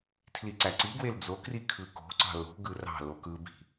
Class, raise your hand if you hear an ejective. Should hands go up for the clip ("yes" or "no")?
no